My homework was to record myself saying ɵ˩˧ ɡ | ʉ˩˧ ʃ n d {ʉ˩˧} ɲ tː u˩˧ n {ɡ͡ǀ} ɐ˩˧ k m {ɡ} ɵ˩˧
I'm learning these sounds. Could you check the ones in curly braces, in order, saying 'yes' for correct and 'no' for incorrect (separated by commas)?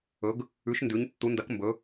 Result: yes, no, no